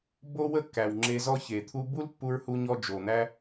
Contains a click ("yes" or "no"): yes